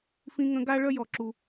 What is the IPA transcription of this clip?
f ĩ˦ ŋ ə̃˦ ɡ a˥ ɭ œ˦ j ɔ˩ ǁ u˩

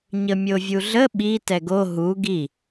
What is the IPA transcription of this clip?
ɲ ə mʲ o vʲ u ɮ ə ɓ i t ɛ ɡ o ɦ u ɡ i

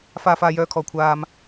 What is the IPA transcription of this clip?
f aː˨ f aː˨ j œː˨˧ kʰ ɔː˨˩ kʷʰ aː˨ m

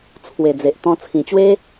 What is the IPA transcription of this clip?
t͡sʰ w e˨˩ d͡z e˨ ʔ t̪ ɔ̃˧ t͡sʰ ĩ˨˩ t͡ɕ w e˦

